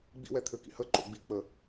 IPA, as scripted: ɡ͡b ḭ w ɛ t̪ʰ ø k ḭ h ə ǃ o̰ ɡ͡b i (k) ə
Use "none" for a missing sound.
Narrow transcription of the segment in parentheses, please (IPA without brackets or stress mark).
k͡p